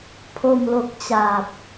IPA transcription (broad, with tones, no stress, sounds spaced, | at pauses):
pʰ o˨˩ m l o˨˩ k̚ t͡ɕ a˨˩ p̚